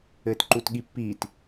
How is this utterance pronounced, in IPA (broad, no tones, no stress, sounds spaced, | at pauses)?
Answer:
ɘː t ǃ u t ɠ i pː iː t